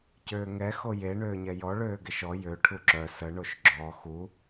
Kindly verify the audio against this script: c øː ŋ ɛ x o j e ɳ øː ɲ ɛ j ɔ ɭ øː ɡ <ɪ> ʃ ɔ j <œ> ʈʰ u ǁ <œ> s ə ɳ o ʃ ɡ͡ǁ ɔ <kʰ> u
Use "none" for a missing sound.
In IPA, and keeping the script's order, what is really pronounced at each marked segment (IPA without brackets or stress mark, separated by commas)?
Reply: ɪ, ø, œ, x